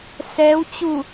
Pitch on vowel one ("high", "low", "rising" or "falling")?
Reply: rising